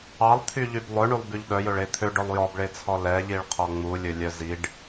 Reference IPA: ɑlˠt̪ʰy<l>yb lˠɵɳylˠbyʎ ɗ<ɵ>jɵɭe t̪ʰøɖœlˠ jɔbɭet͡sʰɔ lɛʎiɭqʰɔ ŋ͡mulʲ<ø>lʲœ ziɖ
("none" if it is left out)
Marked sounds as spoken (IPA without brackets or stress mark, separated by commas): ʎ, œ, ɵ